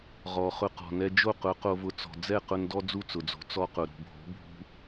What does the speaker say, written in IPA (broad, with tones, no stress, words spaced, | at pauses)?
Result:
ʁɔ˩ χʊ˧qɔ̤˩ nɛ˧d͡ʒo˥˩qʊ˩˥ qo˧vʊ˧ t͡sɔ̤˩d͡zɛ˥˩qʊ˧n dɔ˥d͡zu˥˩t͡sʊ˩d͡zo̤˩˥ t͡sɔ˧qʊ˩ɾṳ˩bʱo̤˩˥ bʱṳ˧